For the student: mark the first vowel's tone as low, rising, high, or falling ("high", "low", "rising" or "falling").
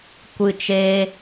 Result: high